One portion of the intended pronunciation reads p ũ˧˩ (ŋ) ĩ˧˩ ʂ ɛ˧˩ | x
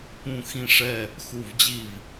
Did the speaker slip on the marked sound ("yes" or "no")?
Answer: yes